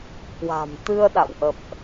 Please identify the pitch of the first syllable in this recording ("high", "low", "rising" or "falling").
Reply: low